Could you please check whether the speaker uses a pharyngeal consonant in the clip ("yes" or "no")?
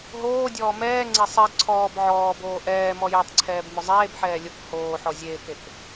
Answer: yes